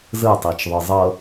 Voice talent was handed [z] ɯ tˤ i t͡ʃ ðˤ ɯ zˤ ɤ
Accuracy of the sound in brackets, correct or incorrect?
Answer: correct